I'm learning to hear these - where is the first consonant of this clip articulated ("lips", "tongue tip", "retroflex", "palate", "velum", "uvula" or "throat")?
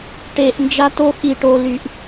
retroflex